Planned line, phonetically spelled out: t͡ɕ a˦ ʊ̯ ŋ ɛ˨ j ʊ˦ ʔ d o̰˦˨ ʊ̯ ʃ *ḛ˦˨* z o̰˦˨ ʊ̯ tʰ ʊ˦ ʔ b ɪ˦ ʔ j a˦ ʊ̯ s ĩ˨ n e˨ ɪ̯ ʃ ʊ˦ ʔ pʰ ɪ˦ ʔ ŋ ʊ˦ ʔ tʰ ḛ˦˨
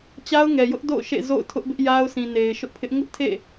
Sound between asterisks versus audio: correct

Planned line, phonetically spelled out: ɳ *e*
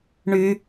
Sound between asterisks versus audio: incorrect: y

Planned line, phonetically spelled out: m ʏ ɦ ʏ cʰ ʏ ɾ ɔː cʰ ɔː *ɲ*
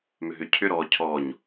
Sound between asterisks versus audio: correct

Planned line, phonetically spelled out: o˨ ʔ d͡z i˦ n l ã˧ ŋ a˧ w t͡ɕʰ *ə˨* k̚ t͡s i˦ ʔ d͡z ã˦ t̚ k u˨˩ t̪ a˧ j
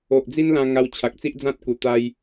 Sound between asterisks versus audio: incorrect: a˨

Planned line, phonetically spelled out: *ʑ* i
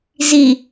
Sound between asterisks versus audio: incorrect: z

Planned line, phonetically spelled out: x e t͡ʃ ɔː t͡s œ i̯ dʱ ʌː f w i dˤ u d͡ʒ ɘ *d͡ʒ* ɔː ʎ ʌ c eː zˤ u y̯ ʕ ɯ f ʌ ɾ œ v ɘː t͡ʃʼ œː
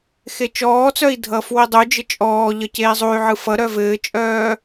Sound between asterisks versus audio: incorrect: t͡ʃʼ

